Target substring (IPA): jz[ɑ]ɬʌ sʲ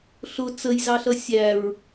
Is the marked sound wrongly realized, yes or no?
no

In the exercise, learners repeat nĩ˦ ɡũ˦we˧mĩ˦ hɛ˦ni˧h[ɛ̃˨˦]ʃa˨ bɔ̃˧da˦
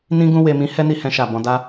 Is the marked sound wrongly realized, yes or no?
yes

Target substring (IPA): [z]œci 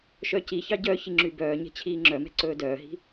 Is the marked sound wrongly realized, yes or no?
yes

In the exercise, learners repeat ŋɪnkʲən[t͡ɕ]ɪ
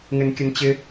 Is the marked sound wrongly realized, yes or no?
no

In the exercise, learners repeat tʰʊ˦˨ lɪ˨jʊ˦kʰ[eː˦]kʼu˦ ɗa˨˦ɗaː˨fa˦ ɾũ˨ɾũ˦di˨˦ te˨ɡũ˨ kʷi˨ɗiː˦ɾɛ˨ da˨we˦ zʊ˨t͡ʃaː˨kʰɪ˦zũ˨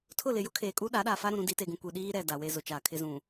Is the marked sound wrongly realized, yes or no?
yes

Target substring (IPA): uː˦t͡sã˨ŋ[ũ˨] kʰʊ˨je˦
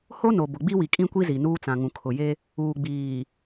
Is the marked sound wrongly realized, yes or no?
no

